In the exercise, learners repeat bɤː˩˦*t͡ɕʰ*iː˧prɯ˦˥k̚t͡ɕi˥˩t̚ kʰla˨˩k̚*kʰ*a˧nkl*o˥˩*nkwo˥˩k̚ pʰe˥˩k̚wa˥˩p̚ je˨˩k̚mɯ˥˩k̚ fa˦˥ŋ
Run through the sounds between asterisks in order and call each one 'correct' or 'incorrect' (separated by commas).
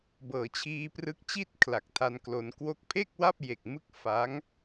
correct, incorrect, incorrect